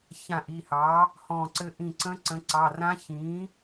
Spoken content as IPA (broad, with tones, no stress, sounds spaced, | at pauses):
ç ã˧˩ ʔ i˩˧˩ h ɑː˩˥ | h ɔ̃˧˩ ǀ ɘ˧˥ ʔ ĩ˧˩ ǀ ə̃˧˥ ǀ ə̃˩˥ ǀ ɑ˩˧˩ r ã˧˥ ç ĩː˩˥